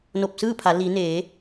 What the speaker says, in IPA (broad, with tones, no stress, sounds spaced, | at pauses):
n o˧˩ p̚ s ɯː˥˨ pʰ a˩˧ l i˩˧ n eː˩˧